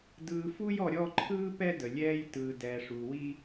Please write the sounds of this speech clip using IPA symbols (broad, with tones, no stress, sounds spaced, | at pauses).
d ɯː˨ f u˦ j ɔ˨ ɾʲ ɔ˦˨ ǃʰ ɯː˦ p ɛ˦ d ə˨ lʲ ɛː˦ j t ɯː˨ d ɛ˨ ʂ u˨ w i˦